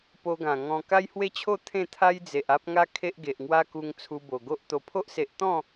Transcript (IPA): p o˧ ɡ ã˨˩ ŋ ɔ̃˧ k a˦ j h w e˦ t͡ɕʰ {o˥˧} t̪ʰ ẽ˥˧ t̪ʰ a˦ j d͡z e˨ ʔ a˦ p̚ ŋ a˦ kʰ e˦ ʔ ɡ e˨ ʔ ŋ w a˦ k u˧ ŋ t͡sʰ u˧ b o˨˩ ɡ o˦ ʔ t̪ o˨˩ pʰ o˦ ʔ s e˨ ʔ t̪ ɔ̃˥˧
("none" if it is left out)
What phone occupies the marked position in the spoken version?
o˥˧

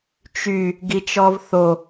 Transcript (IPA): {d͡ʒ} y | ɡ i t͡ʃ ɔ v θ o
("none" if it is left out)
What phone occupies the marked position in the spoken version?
t͡ʃ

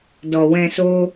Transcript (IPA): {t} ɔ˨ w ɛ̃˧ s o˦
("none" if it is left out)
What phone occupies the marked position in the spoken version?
d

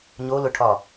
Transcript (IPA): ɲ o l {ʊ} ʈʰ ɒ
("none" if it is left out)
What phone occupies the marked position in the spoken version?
ʊ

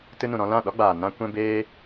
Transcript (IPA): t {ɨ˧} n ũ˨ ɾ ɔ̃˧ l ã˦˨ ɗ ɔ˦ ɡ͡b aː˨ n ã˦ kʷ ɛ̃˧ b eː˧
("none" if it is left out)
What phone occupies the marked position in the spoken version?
ɨ˧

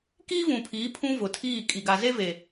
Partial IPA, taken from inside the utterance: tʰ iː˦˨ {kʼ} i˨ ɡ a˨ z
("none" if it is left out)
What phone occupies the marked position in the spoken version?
kʼ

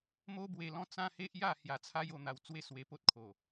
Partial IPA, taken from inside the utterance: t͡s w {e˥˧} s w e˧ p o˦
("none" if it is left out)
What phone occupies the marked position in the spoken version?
e˥˧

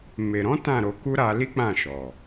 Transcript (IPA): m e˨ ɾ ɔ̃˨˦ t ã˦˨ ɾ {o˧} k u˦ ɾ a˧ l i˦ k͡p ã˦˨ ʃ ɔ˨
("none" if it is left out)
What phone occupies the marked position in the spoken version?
o˧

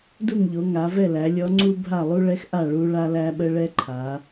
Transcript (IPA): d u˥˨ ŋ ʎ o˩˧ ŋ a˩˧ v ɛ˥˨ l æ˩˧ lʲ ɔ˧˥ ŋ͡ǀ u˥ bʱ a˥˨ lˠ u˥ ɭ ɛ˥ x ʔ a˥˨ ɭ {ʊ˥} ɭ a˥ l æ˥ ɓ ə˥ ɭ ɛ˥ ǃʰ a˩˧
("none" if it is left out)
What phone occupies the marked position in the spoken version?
u˥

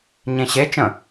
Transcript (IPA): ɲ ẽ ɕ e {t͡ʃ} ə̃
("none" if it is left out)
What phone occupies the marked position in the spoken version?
t͡ʃ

